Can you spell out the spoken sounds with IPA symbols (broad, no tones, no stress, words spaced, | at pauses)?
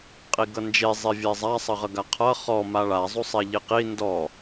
qʼiɡʌnd͡ʒe zˤevʲɛzˤa sˤʌʁʌɡaqʰʌ χɔ maɭa zˤusˤɛʎiqi ndɔ